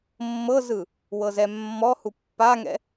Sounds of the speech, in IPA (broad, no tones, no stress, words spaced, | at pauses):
mːɤzɯ | wɤzɛmːɔhu pːaŋɛ̰